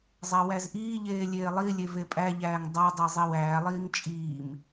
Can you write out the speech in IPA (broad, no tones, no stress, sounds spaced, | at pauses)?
zˤ æ w æ z ʔ iː ʎ eː lʲ eː lˠ i lʲ e v e pʼ æ ʎ æː ŋ dˤ a dˤ e zˤ i w æː lˠ iː ŋ t͡ʃʼ iː m